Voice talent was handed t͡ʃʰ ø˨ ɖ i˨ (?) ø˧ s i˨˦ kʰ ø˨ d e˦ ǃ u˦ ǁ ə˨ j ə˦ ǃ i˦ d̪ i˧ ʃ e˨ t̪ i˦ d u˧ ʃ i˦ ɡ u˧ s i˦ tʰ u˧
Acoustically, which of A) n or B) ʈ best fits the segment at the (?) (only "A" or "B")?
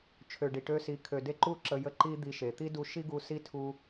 B